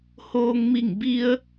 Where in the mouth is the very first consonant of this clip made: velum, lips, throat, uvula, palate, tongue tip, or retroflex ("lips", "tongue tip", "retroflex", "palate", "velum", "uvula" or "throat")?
throat